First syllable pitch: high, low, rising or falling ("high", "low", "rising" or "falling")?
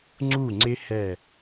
falling